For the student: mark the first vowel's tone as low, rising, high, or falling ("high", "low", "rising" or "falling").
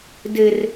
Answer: high